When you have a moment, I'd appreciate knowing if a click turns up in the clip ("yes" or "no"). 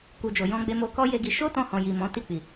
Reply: no